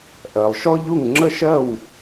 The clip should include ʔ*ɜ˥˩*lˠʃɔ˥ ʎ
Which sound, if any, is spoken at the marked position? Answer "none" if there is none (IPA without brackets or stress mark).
ɜ˩